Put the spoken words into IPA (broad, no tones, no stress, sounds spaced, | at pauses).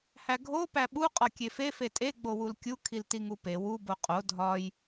h æ ɡʱ o p æ ɓ u qʼ ɒ kʲ e f e f e tʼ e ɡ͡b o w u l kʲ u kʰ i l t i ŋ u p e w u b o qʼ o dʱ ɒ j